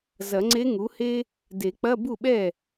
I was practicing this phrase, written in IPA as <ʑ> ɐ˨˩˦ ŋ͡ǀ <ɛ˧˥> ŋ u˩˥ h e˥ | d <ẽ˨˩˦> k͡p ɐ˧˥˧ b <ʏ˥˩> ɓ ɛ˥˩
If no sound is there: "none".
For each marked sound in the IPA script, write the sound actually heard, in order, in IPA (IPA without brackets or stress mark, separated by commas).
z, e˧˥, e˨˩˦, u˥˩